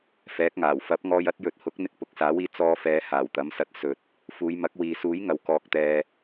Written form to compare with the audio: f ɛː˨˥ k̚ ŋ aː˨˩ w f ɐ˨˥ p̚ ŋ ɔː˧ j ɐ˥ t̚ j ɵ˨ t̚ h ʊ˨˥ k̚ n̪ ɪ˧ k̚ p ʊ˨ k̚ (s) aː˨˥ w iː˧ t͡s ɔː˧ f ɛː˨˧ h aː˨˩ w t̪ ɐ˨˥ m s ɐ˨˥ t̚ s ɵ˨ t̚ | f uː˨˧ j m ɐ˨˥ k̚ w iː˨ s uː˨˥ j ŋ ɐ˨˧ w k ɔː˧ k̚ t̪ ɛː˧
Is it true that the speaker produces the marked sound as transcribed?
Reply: yes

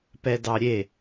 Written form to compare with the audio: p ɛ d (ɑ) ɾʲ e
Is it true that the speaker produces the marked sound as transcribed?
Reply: yes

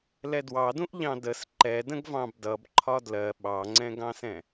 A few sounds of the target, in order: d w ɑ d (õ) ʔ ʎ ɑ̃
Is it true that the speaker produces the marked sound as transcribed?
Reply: no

